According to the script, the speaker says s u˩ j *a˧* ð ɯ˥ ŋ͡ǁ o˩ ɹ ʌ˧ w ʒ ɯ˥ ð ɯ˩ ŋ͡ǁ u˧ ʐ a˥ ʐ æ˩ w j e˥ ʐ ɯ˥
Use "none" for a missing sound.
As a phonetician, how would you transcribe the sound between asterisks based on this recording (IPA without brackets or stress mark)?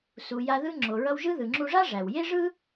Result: a˧